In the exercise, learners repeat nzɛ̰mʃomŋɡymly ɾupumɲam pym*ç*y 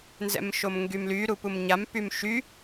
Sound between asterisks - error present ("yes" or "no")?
yes